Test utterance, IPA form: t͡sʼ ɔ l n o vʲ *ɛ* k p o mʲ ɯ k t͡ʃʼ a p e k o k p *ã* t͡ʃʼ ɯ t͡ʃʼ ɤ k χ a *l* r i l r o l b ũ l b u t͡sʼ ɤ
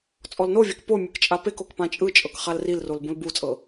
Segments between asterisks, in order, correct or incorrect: correct, correct, correct

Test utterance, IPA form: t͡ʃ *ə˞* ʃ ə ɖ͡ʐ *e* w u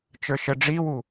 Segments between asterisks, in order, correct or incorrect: correct, incorrect: i

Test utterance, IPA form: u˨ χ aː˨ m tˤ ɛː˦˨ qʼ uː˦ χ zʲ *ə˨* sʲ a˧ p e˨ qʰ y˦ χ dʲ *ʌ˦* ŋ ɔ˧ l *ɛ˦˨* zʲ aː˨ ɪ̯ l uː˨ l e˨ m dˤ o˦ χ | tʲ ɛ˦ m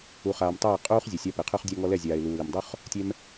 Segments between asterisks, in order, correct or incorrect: correct, incorrect: a˦, correct

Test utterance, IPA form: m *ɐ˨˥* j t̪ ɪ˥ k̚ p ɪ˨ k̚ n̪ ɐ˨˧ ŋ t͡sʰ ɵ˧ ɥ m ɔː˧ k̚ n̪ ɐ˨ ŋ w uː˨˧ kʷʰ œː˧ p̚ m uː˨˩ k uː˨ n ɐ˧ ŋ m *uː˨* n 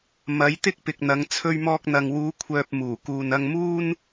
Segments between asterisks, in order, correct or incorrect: incorrect: ɐ˨˧, incorrect: uː˥

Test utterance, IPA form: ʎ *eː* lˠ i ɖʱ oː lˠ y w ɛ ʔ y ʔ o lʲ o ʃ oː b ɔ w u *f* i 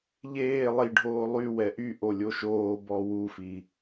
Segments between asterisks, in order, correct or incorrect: correct, correct

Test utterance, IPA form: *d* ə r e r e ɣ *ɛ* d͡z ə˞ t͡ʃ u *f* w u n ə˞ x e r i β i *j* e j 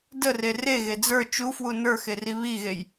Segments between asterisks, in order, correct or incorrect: correct, incorrect: e, correct, incorrect: ɣ

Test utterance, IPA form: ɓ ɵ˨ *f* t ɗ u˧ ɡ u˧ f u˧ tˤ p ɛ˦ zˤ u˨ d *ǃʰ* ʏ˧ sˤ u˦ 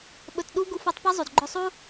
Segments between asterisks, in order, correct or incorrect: incorrect: none, incorrect: ɡ͡ǃ

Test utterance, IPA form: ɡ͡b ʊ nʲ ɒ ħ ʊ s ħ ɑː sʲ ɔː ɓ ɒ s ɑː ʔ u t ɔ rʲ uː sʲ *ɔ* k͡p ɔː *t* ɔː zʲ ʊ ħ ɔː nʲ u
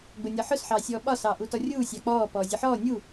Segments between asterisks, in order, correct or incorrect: incorrect: ɑ, incorrect: p

